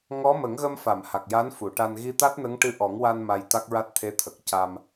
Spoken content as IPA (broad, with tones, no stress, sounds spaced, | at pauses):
ŋ ɔ˧˥ m ə˨˩˦ ŋ ɣ ə˧ m f a˨˩˨ m h a˨˩ k̚ j a˧˥ n f u˨˩˨ ʈ a˧ n ɣ i˧ t̪ a˦˥ t̚ n ə˧˥ ŋ ʈ ɨ˧˥ ʔ ɔ˨˩˦ ŋ w a˧ n m a˧ j t̪ a˦˥ k̚ ɹ a˦˥ t̚ t̪ʰ e˧˥ t̪ʰ ə˨˩ k̚ c a˧ m